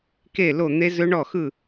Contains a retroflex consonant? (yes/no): yes